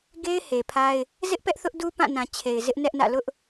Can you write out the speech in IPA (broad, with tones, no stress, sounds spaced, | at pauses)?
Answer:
ɡ e˦ ɪ̯ h e˨ pʰ a˦ ɪ̯ | z ɪ˦ ʔ p ɛ˦ ʔ θ ʊ˦ ʔ d u˦ p ã˦˨ n ã˨ t͡ɕʰ e˨ ɪ̯ z ɪ˦ ʔ n ɛ˦ ʔ n ä̰˦˨ l ʊ˦ ʔ